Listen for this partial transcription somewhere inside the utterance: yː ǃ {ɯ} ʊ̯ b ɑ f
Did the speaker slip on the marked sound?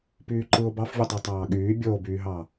no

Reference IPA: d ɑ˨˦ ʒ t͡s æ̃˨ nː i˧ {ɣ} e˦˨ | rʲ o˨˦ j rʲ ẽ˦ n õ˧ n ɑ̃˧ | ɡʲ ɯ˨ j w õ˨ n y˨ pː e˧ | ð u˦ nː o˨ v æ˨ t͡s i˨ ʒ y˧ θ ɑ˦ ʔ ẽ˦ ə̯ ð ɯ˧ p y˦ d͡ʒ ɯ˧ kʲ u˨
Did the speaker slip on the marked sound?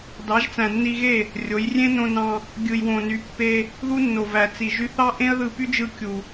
no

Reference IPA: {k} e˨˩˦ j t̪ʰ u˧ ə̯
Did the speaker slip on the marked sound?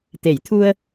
yes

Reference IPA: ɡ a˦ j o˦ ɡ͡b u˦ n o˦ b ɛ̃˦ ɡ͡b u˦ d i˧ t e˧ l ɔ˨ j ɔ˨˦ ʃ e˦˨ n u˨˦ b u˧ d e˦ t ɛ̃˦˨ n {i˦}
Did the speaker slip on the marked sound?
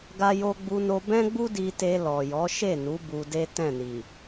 yes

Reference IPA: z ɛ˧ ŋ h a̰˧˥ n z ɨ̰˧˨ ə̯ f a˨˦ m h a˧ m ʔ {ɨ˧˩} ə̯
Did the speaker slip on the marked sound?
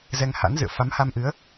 yes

